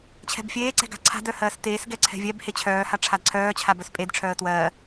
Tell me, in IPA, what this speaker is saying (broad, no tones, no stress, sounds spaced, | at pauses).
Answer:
t͡ɕʰ ɛ̤ b fʲ eː ǀ ɛ̤ ɡ a̤ ǀʰ a̤ d œ h ɜː s t eː s ɡ ɛ ǀʰ ɛ̤ vʲ ɛ b h e t͡ɕʰ œː h a ʈ͡ʂʰ a d ǀʰ œː t͡ɕʰ a b œ s pʼ e d ʈ͡ʂʰ œː ə̯ t w ɜː